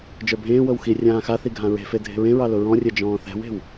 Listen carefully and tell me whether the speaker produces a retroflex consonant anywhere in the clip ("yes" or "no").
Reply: no